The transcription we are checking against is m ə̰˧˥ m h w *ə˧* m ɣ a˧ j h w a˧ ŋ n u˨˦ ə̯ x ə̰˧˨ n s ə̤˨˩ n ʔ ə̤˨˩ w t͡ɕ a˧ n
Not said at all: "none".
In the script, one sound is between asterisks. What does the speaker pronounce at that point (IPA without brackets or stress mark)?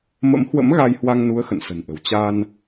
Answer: ə̰˧˥